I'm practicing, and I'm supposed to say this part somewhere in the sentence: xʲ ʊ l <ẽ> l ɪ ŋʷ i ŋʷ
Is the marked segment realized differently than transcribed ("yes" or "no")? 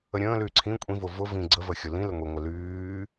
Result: yes